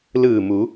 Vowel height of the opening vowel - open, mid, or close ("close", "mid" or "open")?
close